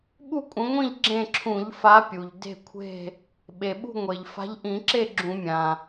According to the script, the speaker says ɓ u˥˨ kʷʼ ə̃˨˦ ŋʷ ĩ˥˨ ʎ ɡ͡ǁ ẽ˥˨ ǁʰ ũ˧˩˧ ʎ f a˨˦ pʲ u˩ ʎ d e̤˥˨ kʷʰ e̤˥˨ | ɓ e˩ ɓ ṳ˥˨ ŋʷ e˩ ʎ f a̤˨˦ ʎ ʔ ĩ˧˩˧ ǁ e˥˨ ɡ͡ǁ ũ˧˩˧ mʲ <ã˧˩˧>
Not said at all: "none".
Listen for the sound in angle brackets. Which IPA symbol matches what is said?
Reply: ã˩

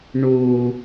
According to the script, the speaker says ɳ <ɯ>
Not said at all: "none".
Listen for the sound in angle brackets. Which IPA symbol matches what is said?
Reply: u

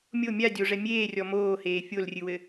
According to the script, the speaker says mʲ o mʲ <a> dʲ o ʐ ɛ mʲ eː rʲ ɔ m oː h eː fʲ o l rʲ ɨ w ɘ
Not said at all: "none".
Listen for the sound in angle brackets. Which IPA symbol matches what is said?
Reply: a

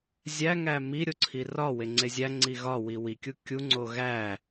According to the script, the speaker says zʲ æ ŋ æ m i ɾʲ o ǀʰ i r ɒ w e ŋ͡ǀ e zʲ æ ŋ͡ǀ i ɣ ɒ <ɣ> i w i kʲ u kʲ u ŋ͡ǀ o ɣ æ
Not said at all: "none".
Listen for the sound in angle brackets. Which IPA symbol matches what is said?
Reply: w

